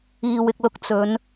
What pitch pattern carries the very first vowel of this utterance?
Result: low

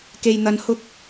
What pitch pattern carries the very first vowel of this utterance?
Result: low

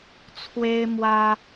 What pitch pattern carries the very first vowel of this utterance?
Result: high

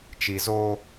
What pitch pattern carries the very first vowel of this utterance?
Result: low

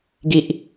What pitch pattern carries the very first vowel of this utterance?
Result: low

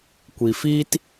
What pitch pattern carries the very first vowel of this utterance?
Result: low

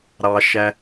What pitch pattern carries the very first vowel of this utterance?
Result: low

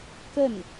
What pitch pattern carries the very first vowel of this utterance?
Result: falling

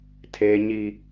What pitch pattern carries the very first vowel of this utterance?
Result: high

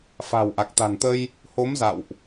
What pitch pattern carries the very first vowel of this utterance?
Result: low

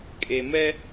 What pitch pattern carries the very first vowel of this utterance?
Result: low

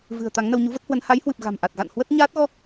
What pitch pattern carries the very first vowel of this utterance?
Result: low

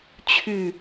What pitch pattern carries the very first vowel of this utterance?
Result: falling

